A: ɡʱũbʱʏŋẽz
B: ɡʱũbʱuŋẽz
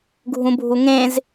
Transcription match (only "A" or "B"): B